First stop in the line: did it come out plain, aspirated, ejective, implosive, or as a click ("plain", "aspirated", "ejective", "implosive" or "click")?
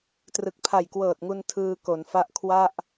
plain